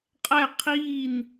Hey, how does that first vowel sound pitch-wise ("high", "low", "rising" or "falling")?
falling